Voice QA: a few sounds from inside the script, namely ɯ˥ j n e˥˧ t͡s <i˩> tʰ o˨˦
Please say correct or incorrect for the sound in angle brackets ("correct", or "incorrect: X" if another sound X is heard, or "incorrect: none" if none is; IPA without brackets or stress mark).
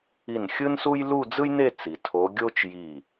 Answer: correct